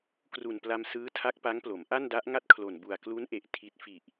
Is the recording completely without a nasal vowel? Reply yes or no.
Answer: yes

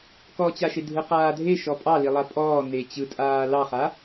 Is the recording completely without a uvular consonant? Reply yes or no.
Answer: no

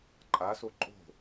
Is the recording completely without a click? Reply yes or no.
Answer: no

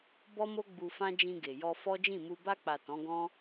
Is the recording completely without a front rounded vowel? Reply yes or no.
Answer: yes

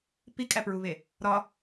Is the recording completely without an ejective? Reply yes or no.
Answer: no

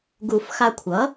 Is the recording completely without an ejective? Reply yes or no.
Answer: yes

